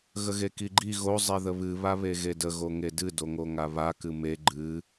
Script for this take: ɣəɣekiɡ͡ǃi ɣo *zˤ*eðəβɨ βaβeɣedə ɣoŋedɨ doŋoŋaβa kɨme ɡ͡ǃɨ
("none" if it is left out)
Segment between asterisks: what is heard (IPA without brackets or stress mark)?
zˤ